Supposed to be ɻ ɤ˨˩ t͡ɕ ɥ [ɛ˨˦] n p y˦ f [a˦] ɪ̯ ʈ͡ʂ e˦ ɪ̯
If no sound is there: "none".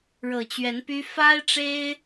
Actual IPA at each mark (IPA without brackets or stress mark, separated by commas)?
ɛ˨˦, a˦